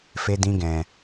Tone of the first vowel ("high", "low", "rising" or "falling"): high